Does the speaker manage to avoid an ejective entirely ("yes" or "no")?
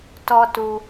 yes